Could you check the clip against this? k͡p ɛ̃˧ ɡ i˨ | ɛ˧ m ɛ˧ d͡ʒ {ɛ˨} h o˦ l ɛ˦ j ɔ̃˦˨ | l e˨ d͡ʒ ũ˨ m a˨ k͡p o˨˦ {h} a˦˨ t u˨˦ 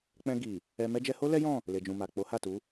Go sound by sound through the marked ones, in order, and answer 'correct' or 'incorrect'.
incorrect, correct

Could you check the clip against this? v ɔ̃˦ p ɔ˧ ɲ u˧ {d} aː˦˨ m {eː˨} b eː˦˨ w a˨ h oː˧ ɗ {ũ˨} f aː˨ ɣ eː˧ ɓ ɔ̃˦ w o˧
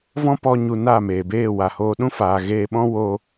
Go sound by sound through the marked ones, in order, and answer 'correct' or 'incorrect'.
incorrect, correct, incorrect

